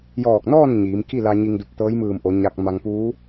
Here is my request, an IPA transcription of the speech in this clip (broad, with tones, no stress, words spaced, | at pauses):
jɔː˧˩k̚nɔː˥˨n ɲiː˩˧mki˥˨la˧ ɲi˧ŋdu˧˩p̚t̪ɤː˧˥j mɯː˧˩mʔo˩˧ ɲa˧k̚ma˧ŋ puː˧˥